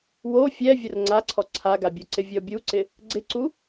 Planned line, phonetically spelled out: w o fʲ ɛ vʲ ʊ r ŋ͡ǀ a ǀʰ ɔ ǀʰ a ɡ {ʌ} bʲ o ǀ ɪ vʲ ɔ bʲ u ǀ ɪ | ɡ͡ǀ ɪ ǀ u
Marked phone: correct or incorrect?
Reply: incorrect